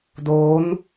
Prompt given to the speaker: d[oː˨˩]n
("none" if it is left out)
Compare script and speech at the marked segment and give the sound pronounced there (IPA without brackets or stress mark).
oː˦˥